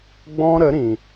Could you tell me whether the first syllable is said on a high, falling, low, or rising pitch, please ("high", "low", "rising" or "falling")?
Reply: high